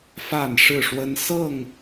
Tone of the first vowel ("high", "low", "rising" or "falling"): falling